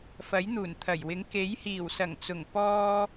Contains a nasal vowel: no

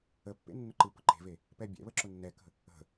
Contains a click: yes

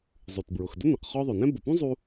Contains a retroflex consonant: no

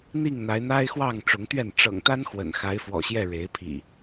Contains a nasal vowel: no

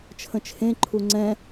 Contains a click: yes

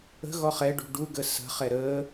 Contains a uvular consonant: yes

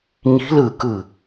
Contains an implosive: no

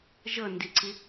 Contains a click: yes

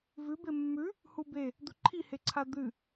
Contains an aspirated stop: yes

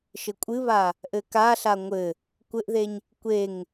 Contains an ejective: yes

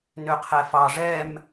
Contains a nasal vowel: no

